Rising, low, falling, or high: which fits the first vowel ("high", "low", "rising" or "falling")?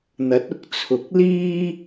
rising